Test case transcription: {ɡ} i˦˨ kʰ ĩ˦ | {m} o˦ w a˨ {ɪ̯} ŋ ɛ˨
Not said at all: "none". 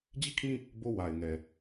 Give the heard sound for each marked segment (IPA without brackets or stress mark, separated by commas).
d͡ʑ, b, ɪ̯